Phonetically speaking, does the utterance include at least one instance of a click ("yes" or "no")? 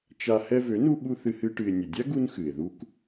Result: no